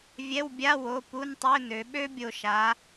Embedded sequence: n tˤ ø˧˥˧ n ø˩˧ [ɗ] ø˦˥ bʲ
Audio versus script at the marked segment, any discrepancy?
yes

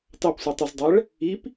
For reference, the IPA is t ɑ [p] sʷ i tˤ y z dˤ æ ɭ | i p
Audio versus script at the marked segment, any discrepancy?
no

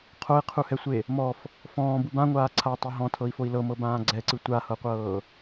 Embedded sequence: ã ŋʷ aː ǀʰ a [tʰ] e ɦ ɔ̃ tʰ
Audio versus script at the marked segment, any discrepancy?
yes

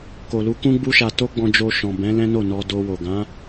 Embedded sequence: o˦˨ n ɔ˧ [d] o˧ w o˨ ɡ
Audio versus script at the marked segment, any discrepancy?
no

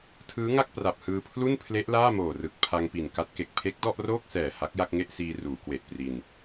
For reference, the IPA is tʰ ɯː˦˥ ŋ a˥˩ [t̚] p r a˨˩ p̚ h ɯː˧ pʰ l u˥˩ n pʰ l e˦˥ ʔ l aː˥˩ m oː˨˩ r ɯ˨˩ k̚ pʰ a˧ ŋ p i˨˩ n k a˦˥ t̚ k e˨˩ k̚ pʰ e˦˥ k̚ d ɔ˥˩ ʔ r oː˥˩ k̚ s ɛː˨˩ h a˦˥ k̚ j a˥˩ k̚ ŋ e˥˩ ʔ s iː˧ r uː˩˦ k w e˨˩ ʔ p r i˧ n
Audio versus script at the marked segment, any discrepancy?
yes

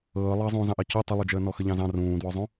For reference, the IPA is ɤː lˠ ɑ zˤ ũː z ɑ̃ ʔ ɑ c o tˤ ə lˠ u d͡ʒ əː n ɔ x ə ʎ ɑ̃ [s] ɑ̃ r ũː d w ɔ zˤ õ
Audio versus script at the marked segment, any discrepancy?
yes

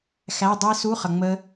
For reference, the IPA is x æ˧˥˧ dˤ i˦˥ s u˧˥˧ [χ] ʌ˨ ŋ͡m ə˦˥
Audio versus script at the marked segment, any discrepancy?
no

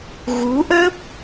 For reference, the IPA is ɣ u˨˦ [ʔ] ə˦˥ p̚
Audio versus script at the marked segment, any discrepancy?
no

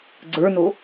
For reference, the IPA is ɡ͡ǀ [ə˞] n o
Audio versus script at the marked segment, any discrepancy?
no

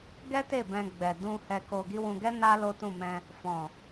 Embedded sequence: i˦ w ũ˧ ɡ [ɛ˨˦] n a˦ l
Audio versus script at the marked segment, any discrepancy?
yes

